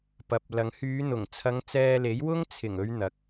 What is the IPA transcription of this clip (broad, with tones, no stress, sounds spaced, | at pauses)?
p ɐ˨˥ p̚ l ɐ˨˧ ŋ h yː˨˧ n̪ ʊ˨˩ ŋ t͡sʰ ɐ˨˧ ŋ t͡s ɛː˧ l e˨˥ j w ʊ˥ ŋ t͡sʰ ɪ˨˩ ŋ ɵ˨˧ ɥ n̪ ɐ˨˥ k̚